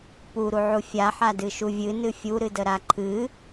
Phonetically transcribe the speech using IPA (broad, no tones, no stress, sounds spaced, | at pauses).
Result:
p u ɾ u ʕ u fʲ a ħ a d ɨ ʃ u vʲ ɨ n ɨ fʲ u ɾ ɨ d ə ɾ a ǃʰ ɨ